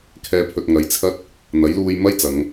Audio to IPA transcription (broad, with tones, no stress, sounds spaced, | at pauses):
kʰ ɛː˨˧ pʰ ɵ˨ t̚ ŋ ɐ˨˥ j t͡sʰ ɐ˥ t̚ | n̪ ɐ˨˥ j l uː˧ j m ɐ˥ j t͡s ɐ˨˧ ŋ